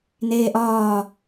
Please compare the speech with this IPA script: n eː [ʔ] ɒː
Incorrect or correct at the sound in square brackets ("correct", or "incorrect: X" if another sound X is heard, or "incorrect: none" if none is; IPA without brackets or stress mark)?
correct